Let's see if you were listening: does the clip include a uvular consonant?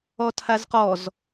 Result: yes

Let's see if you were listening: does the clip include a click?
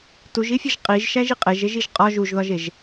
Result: no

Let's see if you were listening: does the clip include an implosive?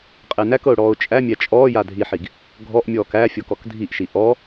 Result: no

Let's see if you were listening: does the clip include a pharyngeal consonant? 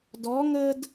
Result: no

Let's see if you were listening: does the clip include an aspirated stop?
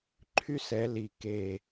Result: yes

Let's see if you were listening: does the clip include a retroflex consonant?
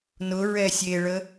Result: yes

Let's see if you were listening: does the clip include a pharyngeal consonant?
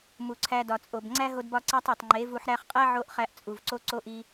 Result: yes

